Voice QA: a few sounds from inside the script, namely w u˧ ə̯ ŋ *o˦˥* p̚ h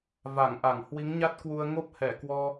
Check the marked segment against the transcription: correct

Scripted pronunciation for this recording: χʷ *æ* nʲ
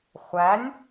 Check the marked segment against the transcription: correct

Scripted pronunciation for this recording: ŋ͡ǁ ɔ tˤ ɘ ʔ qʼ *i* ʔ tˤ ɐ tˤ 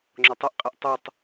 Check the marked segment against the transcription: incorrect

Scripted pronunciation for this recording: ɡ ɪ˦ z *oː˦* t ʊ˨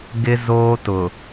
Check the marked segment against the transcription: correct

